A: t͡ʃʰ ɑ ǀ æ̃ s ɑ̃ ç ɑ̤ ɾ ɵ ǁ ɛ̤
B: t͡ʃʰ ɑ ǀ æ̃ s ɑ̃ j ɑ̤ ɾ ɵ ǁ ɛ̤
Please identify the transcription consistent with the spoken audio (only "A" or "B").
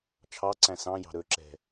B